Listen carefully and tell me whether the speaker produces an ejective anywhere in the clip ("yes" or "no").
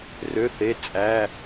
yes